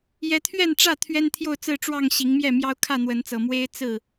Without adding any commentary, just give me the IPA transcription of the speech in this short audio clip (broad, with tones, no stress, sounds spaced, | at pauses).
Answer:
j ɛ˨˦ t̪ʰ ɥ ɛ˥˨ n ʈ͡ʂ ä˥˨ t̪ʰ ɥ ɛ˦ n t̪ʰ j o˥˨ ʊ̯ t͡s ɹ̩˥˨ ʈ͡ʂ w ɑ˥˨ ŋ ɕ i˨˦ ŋ m j ɛ˥˨ m j ɑ˦ ʊ̯ kʰ ä˥˨ n̪ w ə˨˦ n t͡s ɤ˨˩ m w e˦ ɪ̯ t͡s ɹ̩˥˨